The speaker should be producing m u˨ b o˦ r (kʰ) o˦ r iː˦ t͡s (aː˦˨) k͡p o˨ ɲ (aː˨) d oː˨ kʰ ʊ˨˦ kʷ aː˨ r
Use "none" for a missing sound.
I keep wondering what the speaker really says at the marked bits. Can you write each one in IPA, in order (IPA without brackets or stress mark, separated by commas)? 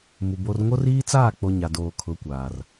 ŋ, aː˦˨, a˨